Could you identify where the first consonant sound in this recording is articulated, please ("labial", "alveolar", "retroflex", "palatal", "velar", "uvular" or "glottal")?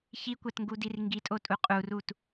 palatal